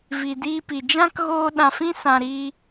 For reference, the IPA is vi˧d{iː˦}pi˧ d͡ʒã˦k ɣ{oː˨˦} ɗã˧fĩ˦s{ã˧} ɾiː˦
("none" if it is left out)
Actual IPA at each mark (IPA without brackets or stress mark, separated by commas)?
iː˦, oː˦, ã˧